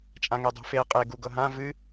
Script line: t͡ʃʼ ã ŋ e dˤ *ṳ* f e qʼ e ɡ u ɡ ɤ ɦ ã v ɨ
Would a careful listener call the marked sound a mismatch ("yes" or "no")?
no